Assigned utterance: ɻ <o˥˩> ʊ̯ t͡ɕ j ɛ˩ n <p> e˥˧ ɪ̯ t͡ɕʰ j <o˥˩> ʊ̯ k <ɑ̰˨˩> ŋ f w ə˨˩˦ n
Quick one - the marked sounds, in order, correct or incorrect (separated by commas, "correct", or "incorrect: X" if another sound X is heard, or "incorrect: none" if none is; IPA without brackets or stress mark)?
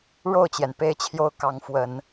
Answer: correct, correct, correct, incorrect: ɑ˧˥